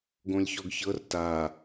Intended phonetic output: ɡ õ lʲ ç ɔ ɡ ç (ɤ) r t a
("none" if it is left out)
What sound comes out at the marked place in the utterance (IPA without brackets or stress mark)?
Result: ɤ